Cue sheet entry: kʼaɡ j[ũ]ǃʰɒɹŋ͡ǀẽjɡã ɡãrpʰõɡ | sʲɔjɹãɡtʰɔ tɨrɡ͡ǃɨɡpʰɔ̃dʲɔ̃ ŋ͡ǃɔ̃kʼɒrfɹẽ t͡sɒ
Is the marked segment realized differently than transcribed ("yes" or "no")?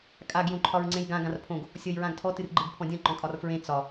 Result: yes